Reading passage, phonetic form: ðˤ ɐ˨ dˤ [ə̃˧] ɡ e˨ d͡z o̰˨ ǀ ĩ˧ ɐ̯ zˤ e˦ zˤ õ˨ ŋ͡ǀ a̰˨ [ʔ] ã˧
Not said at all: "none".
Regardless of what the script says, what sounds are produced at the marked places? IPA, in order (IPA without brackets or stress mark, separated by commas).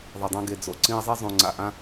ã˧, ʔ